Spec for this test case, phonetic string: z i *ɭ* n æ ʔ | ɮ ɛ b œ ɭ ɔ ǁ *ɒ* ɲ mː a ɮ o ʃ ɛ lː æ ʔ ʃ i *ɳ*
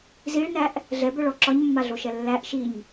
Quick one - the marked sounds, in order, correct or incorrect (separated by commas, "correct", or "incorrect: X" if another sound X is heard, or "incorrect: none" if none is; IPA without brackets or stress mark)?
correct, correct, incorrect: ɲ